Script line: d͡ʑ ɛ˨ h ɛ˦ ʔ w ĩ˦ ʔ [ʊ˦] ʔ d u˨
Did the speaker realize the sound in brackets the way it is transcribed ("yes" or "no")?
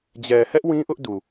yes